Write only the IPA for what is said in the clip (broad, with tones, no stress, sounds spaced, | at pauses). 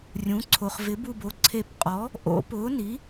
rʲ ũ˨˥ ǀʰ o˨ χ v ɪ˨˥ b u˦˨ b o˨˥ ǀʰ e˦˨ p qʼ ɔ˨˥ | ʔ o̰˨˩˦ p ʊː˨˥ n i˨˥